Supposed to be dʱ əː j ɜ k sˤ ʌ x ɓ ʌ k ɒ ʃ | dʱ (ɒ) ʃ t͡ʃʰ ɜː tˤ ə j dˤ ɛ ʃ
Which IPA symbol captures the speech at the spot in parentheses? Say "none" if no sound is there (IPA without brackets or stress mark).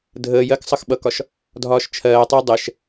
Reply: ɒː